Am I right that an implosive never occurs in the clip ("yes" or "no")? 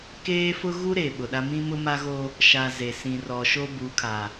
no